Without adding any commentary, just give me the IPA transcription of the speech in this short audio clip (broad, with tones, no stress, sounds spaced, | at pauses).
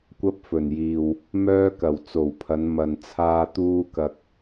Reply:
kʷ ɐ˥ p̚ f ɵ˨˩ n j iː˨ w | m œː˥ k ɐ˨˩ w t͡s o˨˩ w pʰ ɐ˨˧ n m ɐ˨ n t͡sʰ aː˧ t̪ uː˧ k ɐ˨ k̚